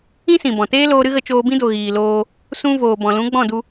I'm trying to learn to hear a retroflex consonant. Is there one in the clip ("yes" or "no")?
no